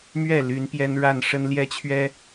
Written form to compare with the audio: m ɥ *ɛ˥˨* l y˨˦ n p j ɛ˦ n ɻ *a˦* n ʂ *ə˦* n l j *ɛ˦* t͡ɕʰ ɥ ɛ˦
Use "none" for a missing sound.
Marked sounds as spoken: ɛ˥˨, a˥˨, ə˦, ɛ˦

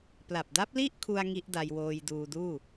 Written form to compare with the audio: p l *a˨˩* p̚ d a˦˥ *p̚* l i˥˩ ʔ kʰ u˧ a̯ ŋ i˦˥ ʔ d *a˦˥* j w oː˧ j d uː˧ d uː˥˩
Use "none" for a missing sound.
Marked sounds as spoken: a˨˩, p̚, a˧

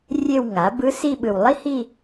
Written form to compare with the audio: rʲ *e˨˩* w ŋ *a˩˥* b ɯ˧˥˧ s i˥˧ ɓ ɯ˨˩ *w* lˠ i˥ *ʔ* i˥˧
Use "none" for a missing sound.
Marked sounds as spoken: e˥˧, a˩˥, w, h

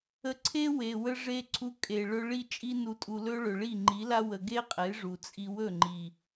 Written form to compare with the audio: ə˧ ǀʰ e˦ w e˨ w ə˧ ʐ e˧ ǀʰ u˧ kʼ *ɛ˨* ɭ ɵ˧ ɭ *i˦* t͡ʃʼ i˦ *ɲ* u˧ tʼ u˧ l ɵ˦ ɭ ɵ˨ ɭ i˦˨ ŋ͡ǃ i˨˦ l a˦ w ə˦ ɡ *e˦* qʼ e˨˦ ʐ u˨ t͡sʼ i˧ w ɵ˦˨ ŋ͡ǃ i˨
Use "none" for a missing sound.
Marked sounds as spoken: e˨, i˦, n, e˦

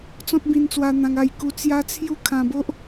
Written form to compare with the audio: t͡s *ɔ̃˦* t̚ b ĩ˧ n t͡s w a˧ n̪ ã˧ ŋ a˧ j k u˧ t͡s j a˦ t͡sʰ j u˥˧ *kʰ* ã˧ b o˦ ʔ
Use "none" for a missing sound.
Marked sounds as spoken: ɔ̃˦, kʰ

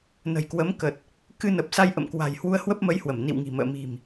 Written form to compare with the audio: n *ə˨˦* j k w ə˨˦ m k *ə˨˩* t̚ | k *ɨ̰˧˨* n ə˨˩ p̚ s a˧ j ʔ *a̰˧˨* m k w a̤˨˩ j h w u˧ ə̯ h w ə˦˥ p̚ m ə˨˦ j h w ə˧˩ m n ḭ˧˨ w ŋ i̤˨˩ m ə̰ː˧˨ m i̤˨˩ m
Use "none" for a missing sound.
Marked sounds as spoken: ə̤˨˩, ə˨˩, ɨ˧, ə̰˧˨

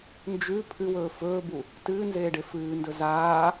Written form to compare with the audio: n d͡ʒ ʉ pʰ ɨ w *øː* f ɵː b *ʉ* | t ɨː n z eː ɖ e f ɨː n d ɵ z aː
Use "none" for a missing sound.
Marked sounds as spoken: ɵː, u

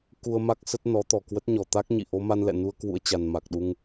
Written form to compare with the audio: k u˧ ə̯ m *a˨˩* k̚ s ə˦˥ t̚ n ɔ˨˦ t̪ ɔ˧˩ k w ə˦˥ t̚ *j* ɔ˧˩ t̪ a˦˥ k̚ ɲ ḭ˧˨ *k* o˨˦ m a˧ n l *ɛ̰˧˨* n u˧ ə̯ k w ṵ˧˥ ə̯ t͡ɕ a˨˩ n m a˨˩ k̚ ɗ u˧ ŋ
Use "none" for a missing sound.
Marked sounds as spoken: a˦˥, ɲ, ʔ, ɛ̰˧˨

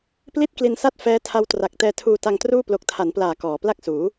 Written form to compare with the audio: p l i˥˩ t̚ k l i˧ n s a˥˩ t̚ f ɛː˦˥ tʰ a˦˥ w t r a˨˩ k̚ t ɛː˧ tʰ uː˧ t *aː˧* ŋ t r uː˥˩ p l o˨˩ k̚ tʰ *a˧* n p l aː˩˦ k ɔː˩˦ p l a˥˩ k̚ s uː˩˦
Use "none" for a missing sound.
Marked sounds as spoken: a˧, a˩˦

